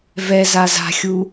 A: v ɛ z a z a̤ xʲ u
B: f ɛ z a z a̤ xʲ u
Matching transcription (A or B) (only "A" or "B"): A